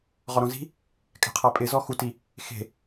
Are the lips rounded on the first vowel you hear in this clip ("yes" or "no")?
yes